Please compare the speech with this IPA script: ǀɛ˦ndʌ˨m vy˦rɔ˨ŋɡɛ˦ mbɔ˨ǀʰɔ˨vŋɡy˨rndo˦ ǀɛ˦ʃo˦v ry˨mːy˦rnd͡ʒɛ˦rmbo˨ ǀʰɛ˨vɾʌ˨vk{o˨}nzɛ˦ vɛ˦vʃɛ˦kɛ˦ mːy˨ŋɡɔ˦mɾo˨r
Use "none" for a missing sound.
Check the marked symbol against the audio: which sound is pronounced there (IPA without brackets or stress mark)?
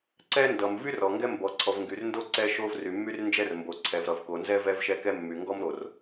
o˨